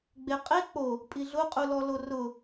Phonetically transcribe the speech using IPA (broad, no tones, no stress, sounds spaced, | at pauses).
ɡ͡b e qʼ e k͡p o | pʼ i ɮ ʊ qʼ u l ɔ l o r ʊ